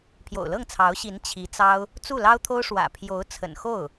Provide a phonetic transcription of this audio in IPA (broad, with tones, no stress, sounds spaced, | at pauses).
pʰ j o̰˨˩ ʊ̯ l ɤ˥˩ ŋ t͡sʰ ɑ˧˥ ʊ̯ ɕ i˧˥ n t͡ɕʰ i˧˥ t͡s ɑ˥ ʊ̯ | t͡s u˥˩ l ɑ˥ ʊ̯ t̪ʰ o˥ ʊ̯ ʂ w ä̰˨˩ pʰ j o˧˥ ʊ̯ t͡sʰ ə̰˨˩ n x o˥˩ ʊ̯